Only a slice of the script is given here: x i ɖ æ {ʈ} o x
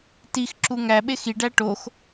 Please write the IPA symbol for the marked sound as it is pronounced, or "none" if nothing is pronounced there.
ʈ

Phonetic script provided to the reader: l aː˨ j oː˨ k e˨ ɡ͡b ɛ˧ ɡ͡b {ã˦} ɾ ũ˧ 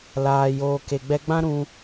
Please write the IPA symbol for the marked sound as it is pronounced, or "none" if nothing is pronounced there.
ã˦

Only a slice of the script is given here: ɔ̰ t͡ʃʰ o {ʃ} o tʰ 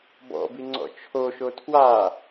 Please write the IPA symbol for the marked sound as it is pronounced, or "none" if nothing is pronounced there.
ʃ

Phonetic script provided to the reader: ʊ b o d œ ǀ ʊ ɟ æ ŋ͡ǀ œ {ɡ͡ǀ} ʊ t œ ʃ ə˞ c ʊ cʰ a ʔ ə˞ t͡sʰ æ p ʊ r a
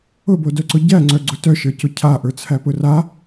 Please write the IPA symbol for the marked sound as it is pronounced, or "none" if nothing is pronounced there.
ɡ͡ǀ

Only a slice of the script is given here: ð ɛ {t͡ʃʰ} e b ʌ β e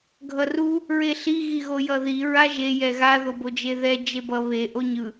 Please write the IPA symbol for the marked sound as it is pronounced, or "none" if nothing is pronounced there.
d͡ʒ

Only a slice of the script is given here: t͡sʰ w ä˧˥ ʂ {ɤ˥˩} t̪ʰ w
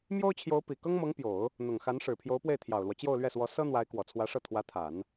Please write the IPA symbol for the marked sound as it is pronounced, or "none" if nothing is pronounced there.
ɤ˥˩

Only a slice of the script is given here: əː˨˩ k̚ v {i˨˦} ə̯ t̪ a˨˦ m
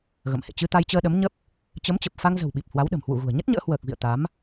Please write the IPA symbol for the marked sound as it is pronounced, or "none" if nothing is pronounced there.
ḭ˧˨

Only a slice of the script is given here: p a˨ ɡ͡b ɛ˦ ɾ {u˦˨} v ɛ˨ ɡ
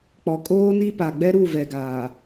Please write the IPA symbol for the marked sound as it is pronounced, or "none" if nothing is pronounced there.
u˦˨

